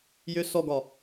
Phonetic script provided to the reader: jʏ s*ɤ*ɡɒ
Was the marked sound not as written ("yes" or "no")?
yes